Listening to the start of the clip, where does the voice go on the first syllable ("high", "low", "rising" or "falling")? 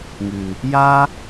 low